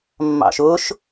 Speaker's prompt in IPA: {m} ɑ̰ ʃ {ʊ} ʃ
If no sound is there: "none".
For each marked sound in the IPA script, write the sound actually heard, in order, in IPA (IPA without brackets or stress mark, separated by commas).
mː, ʊ